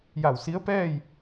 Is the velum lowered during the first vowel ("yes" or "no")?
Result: no